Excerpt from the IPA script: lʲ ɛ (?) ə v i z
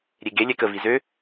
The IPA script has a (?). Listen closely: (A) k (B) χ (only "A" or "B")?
A